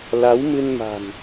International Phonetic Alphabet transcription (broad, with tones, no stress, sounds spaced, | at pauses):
l a˨˦ w m ɨ˧ n m a̤˨˩ n